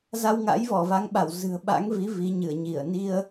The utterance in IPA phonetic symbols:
z a˧ w ŋ a̰˧˥ j v ɔ˧˩ v a˨˦ ŋ ɓ a˧˩ w z ɨ̤˨˩ ə̯ ɓ a̰˧˥ ŋ v i˨˦ v i˨˦ ɲ ɨ˧˩ ə̯ ɲ i˧˩ ə̯ n i˧ ə̯

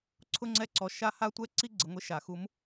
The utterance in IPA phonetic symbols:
ǀʰ ʊ˦˥ ŋ͡ǀ ɛ˦˥ ǀ ɔ˩˥ ʃ a˦˥ h a˦˥ tʷ ɛ˦˥ ǀ i˦˥ ɡ͡ǀ ɪ˩˥ ŋʷ e˦˥ ʃ a˧˩ x u˦˥ m

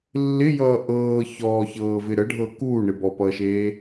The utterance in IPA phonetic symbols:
lː ɪ j ʌː ʔ ɤː ç ɔː ç ɤː v ɪ ɾ ə ɖʱ ɤ k uː ɳ ɪ b ɔ p ʌː ʃ eː

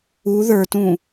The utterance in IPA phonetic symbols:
u ð ə˞ t ũ

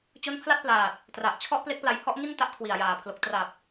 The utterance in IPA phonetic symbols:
t͡ɕ o˦˥ n pʰ l a˥˩ t̚ p l aː˨˩ t̚ | t r a˨˩ ʔ t͡ɕʰ ɔ˥˩ ʔ p l e˦˥ k̚ p l a˧ j h ɔ˥˩ ʔ ŋ i˥˩ n t a˦˥ ʔ kʰ w i˨˩ a̯ j aː˨˩ pʰ l o˨˩ k̚ t r a˨˩ p̚

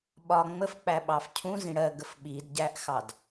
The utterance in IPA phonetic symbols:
ɓ ɒ ŋ͡m ə f k͡p æ ɓ ɑ f cʰ ũ z ĩ ɽ ɜ ɡ ə f ɓ i d ɟ æ ʔ x ɑ d

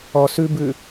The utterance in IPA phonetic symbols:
ɔ s ʉ b ʉ

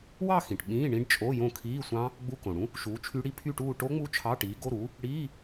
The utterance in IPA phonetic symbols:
w ɑ˥˧ x ĩ˩ ʈ ɓ ĩː˧˥˧ ɳ ĩ˦˥ ɖ t͡ʃʼ o˧˥˧ j õ˥˩ kʰ iː˧˥˧ sʷ ɑ̃˦˥ | ɡ͡b u˧˥˧ k õ˩ ɽ ũ˦˥ | ʃ uː˨˥ t͡ʃʰ y˦˥ ɽ i˦˥ pʰ y˥˧ ʈ uː˥˧ ʈ o˦˥ ŋ͡m u˦˥ t͡ʃʰ ɑ˧˥˧ ʈ iː˨˥ ɡ o˧˥˧ ɾ uː˨˥ | ɽ iː˧˥˧

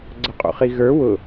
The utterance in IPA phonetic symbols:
ɡ͡ǀ ʌ qʼ ṵ χ i ɣ ə˞ w ʊ

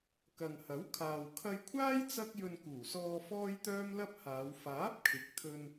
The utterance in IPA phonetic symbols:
k ɐ˨ ŋ h ɐ˨˥ w kʰ aː˨ w kʰ ɐ˧ j kʷʰ aː˥ j t͡s ɐ˥ k̚ j ɵ˧ n k uː˨˩ s ɔː˧ f ɔː˥ j t̪ œː˥ m l ɐ˥ p̚ h aː˨˧ w f aː˨˥ p̚ kʰ ɪ˨˥ k̚ t̪ʰ ɵ˧ n

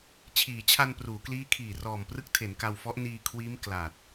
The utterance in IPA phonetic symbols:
t͡ɕʰ iː˩˦ t͡ɕʰ a˧ n p r uː˩˦ k l iː˦˥ kʰ iː˨˩ r ɔː˨˩ m p r ɯ˦˥ k̚ tʰ e˩˦ n k a˧ w f ɔ˦˥ ʔ n iː˧ kʰ w iː˦˥ m k l a˨˩ t̚

